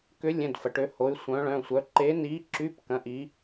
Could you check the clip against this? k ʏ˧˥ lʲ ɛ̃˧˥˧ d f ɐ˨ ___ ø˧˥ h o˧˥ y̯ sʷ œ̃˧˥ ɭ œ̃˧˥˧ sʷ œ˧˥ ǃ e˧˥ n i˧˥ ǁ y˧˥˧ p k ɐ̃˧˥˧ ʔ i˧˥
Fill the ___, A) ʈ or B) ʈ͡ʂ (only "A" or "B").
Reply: A